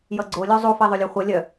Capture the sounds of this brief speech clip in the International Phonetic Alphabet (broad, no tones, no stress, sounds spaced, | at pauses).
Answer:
j ʌ ɡ͡ǀ o lʲ u zˤ u f i ðˤ o lʲ œ χʷ ʌ lʲ œ